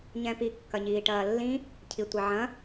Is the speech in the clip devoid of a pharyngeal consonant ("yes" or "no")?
no